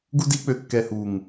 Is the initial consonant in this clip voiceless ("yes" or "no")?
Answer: no